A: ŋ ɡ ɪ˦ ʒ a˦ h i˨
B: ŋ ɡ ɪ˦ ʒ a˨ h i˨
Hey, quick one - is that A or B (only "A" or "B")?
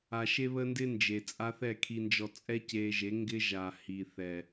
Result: B